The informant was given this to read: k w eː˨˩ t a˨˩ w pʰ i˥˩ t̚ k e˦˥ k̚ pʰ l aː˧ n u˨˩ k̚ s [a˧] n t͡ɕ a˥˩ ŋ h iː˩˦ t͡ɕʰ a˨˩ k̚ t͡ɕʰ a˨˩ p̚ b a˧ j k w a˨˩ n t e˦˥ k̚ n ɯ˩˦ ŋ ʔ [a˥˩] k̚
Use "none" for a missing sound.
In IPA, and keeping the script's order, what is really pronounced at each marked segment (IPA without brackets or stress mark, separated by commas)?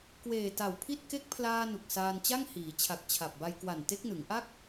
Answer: aː˧, a˥˩